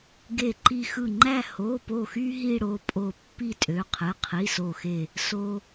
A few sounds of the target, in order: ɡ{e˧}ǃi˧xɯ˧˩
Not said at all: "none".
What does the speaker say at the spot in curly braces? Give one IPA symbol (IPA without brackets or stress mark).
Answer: e˧˩